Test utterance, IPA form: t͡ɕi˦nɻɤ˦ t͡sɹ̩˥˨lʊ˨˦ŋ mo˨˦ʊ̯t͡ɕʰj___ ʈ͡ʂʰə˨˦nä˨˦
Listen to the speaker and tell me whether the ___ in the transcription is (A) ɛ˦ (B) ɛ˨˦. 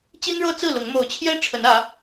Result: A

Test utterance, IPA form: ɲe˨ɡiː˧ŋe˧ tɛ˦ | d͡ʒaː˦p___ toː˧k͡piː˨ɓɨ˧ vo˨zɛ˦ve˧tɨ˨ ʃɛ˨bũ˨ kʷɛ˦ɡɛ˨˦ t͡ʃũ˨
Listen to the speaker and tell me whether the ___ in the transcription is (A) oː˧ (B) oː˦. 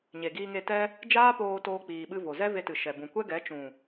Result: A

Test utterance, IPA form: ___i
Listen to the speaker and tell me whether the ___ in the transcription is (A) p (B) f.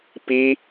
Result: A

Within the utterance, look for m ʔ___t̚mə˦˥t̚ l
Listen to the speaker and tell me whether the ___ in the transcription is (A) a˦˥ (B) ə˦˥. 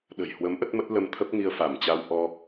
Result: B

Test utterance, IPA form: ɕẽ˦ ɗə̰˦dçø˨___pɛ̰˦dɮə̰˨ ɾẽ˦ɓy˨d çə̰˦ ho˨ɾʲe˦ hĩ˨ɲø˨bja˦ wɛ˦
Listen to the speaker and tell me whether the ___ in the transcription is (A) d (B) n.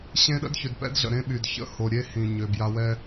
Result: A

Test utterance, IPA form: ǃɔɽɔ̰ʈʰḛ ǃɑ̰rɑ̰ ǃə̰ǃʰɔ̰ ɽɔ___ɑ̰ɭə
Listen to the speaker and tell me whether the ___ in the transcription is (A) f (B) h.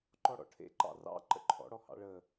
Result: B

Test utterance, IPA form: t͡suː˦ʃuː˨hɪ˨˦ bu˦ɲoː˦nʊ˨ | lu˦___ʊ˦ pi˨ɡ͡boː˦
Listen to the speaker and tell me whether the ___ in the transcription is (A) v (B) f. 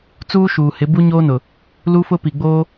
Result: B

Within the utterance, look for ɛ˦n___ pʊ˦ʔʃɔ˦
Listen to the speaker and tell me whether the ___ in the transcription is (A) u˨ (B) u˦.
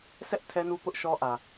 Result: B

